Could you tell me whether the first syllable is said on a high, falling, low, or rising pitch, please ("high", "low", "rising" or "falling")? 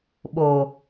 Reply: low